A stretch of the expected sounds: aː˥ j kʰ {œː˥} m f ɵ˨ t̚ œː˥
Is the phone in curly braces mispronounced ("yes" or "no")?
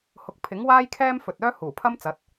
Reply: yes